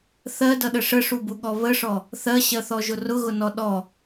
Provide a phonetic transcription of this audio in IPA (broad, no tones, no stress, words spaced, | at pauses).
θɜdʌɗə ʂəʂubuɠɔ βəʂɔ | θɜɕɜθɔʒʊ rʊɣʊnɔ ɗɔ